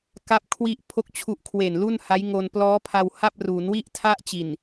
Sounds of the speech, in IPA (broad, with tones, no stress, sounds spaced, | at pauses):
k a˥˩ p̚ kʰ w i˥˩ ʔ pʰ o˥˩ k̚ t͡ɕʰ u˦˥ ʔ kʰ w e˨˩ n l u˥˩ n h a˦˥ j ŋ o˧ n p l ɔː˦˥ pʰ a˧ w h a˥˩ p̚ r uː˩˦ n w i˥˩ ʔ tʰ a˥˩ ʔ t͡ɕ i˨˩ n